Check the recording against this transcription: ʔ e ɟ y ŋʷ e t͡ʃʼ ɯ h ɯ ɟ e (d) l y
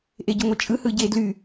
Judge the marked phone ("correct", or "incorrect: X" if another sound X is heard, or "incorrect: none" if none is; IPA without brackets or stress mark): correct